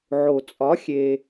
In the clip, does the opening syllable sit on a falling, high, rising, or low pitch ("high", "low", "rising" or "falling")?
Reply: low